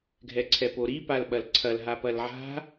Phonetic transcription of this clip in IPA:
ɡʱɛǀʰɛpoɾi palɓɐlǀʰɐl ɦapɐlʕa̤

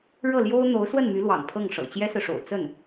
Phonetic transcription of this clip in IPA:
ɻɤ˥˩ljo˥ʊ̯ n̪o˧˥ʊ̯ swə˥˩nmy˧˥lwɑ̰˨˩ŋ pʰɤ˥˩ŋʂɤ̰˨˩ t͡ɕjɛ˥sɹ̩˨ʂo̰˨˩ʊ̯ t͡sə˥˩n

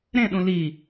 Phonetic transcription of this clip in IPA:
ɾẽɗũ li

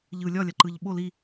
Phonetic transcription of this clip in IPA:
ʎɯ lʲɒlʲaǃɯʎ ɓo li

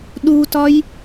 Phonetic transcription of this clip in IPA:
ɗutɒj

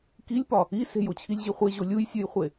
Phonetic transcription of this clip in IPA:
kilʲpɒ | i se̤jot͡ɕʰilʲʑi χʷeʑo lʲujsʲujχʷe

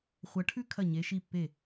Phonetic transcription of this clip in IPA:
χʷɐ˩˧ʈʰʉ˦ kʰɐ˧˩ɲe˩˧ʃi˧˩pːe˧˩

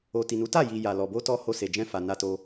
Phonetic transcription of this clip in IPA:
o˨ti˨nu˨˦ta˦˨ ji˧ ja˨lɔ˨bo˧tɔ˧ ho˧se˨d͡ʒɛ̃˧fa˨ na˧to˧

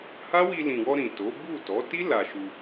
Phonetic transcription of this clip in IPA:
ha˦wi˧lĩ˨wɔ˧ ɾĩ˨to˨˦ bu˦˨tɔ˨˦ ti˦ la˧ʃu˧

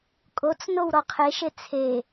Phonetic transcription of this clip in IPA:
kʼot͡s nowɾɔqʰeʃe t͡sʰe

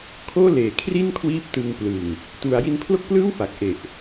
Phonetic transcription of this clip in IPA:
kʰoː˥˩ leː˨˩kʰri˥˩n kʰwiː˥˩p̚tɯ˧ŋ plɯ˨˩ŋ | tu˩˦a̯ji˧npʰlo˥˩k̚plɯː˥˩w fa˨˩k̚ʔe˨˩ʔ

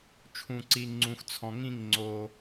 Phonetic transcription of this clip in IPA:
t͡ʃʰũ˨ǀi˨ ŋ͡ǀũ˨xt͡sʰɔ̃˨ŋĩ˦˨ŋ ŋ͡ǀo˧

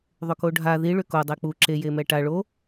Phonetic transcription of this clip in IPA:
ðˤʏkoɖʱa ði ɭʏko dˤek͡pu ǁe jemɛʈa ɭo

